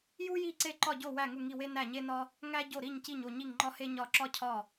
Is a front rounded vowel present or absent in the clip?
absent